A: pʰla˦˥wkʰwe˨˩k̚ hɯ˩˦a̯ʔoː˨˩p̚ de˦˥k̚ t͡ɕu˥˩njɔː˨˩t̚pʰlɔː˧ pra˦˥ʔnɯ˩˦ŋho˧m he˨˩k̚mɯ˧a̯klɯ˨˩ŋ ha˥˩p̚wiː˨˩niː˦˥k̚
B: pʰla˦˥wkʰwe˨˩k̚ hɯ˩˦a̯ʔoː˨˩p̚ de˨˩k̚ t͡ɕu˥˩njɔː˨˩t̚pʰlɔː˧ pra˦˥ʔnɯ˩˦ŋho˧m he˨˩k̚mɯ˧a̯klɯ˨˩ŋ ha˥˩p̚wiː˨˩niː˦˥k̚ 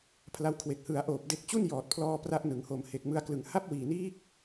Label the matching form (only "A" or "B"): A